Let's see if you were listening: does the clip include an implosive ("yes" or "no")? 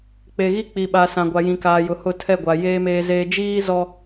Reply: yes